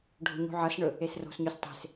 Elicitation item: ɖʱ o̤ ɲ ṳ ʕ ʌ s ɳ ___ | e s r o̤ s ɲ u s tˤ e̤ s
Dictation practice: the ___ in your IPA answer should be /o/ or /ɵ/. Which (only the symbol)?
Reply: ɵ